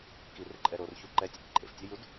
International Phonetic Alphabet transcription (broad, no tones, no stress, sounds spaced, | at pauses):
k i r ʏ ǃʼ ɛ ɾ o r ç u ǃ ɛ tʲ ə t ǃʼ ḛ f tʲ œ j u d